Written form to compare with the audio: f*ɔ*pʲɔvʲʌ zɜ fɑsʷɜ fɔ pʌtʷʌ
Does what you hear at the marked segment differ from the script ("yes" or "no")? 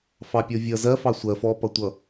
yes